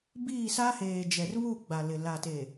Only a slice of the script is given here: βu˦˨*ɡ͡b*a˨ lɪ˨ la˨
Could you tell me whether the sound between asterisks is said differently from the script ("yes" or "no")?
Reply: no